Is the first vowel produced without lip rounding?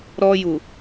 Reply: no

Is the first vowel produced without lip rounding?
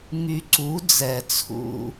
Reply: no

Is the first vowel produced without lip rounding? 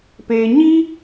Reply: yes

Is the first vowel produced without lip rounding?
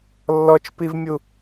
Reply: no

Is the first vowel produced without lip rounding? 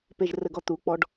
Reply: yes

